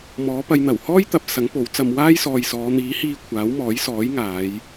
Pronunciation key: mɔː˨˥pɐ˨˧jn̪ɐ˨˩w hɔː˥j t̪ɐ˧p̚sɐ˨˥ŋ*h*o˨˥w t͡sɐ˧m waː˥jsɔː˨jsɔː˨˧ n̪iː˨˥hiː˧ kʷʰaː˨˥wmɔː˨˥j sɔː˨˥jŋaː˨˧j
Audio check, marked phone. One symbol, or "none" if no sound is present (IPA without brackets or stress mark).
p